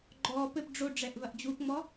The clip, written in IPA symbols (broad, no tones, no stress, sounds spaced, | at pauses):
ɡ͡ǃ ɔː p ɘ p ɖ͡ʐ o ɖ͡ʐ ɛ ʔ v ɐ ʔ d͡ʑ u p ŋ͡m ɔ